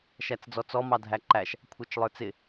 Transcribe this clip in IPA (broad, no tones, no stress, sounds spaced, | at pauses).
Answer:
ʃ æ t͡s d͡z ɔ t͡s ɔ m ɑ dʱ æ ǃ æ ʃ | kʷʰ ɑ t͡ʃ lˠ ə˞ t͡s ɪ